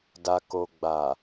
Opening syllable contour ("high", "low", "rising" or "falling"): low